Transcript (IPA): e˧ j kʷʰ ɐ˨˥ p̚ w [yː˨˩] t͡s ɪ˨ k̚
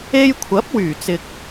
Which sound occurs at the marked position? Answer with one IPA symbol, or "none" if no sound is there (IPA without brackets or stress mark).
yː˨˩